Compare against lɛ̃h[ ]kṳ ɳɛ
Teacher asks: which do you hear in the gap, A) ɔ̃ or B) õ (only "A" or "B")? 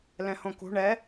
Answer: B